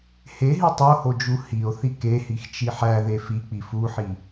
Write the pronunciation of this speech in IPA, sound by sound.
heɦi tˤohod͡ʒu hio̯θi kehixt͡ʃi ħæðe fik͡pi fuħi

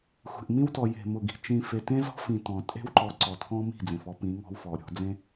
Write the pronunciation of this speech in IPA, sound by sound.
xʷe̤˨ʔmĩ˦wtɔ˨ je̤˨ mʊ˨ɡi̤˨ t͡ʃĩ˨ fe˨tẽ˦zɔ̤˦ fĩ˨ tɔ̃˨ tʼe̤˦wǃɔ˨ ǀɔ˨tʰɔ̃˦ mi̤˦˨d͡zẽ˨fɔ˦ pĩ˨˦ŋɔ̤˦wfɔ˨ɾʲɔ̤˨˦ d͡zẽ˦

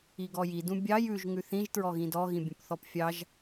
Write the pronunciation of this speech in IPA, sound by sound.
iɡɔji dũbʲɑj ʉʒ ŋʉθĩʒ tɹɔɣĩdɔ ɣĩbʲũpθɔpfʲɑʒ

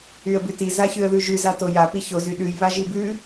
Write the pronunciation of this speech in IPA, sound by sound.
yə̯bʉti zaçʉə̯ðʉʒʉz atoja piçoz yɗʉj βaʒibʉ

